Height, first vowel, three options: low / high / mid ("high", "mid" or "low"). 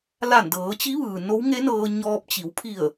low